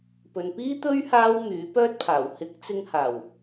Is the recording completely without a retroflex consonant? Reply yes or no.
yes